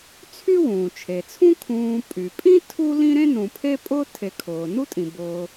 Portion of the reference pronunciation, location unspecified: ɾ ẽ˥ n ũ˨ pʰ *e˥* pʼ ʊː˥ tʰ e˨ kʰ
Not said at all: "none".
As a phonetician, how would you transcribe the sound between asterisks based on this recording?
e˥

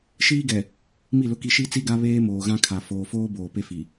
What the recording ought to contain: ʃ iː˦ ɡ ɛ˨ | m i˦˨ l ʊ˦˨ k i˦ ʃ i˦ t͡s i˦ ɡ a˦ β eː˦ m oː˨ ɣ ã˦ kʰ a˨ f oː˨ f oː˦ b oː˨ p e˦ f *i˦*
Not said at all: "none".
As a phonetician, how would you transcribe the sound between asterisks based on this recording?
i˨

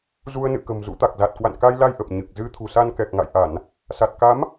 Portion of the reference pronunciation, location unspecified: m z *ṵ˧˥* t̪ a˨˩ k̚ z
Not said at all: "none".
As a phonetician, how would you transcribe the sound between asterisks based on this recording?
ṵ˧˥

